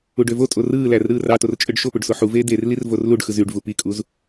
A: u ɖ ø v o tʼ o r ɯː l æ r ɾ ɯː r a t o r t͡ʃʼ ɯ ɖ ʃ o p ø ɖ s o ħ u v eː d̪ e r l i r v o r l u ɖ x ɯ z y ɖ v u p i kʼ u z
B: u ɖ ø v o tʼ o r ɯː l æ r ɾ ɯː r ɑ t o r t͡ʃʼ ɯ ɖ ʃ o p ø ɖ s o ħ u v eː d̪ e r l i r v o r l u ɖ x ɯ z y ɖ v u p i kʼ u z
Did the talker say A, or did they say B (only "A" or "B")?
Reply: B